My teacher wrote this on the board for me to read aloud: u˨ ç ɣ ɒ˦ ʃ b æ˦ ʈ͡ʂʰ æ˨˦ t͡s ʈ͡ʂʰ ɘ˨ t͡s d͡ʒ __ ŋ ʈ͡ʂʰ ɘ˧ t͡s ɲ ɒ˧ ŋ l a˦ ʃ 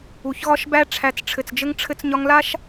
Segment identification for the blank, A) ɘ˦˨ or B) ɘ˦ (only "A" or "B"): B